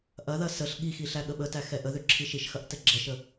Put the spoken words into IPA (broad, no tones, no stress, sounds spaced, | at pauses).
ʔ ɐ ð ɐ s ə ɬ ɠ i x i ɬ æ ɠ ə ɓ ə t æ x ɛ ʔ ə ð ø ǁʰ i ʃ i ʃ x ɐ ʔ t ɛ ɡ͡ǁ ɛ ʃ ə